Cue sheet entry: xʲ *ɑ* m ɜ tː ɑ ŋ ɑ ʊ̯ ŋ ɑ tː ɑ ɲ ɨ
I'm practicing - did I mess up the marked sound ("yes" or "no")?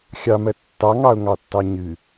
no